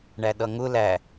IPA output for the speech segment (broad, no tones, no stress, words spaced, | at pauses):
ɳæɗʌŋʊ læ